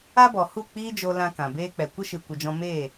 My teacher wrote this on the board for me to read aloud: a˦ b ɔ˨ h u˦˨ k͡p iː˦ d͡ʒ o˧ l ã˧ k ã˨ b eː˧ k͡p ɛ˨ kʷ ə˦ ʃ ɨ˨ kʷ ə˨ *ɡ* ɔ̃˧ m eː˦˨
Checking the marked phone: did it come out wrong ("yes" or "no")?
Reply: yes